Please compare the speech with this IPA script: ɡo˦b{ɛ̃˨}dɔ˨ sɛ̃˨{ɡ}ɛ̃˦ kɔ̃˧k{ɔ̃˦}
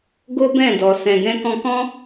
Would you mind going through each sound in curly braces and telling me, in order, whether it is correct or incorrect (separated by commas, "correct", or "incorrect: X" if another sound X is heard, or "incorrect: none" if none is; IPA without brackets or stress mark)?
incorrect: ɛ̃˦˨, correct, correct